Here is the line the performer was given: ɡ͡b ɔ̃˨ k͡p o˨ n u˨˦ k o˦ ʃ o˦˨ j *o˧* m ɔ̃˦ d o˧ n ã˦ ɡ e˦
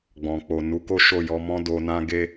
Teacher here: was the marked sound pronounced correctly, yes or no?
no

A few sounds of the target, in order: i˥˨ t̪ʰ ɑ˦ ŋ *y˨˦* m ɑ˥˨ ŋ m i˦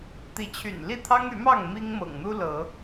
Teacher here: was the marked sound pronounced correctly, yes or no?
yes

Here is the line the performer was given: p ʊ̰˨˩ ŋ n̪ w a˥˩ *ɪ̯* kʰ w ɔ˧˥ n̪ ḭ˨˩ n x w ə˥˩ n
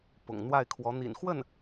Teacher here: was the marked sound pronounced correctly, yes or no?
yes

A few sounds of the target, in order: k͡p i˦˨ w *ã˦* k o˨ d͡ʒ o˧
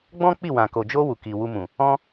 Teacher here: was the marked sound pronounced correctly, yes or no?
no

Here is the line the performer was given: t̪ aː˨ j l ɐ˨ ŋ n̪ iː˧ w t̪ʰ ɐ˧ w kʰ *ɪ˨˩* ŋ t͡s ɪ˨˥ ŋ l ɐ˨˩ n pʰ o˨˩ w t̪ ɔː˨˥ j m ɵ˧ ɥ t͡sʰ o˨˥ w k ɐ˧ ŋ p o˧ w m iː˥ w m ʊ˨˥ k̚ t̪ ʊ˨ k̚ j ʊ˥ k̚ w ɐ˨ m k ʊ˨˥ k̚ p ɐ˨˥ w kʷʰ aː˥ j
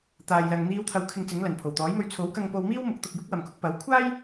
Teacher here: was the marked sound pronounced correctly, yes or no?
no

